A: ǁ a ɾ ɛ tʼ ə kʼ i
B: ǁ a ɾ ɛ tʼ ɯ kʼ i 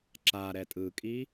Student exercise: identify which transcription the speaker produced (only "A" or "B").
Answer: B